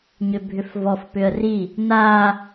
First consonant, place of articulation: palatal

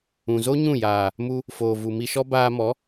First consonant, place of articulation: alveolar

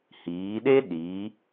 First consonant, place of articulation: glottal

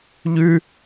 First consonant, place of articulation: palatal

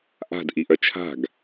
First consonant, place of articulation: glottal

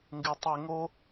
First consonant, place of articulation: velar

